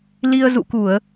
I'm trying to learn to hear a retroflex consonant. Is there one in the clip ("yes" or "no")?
no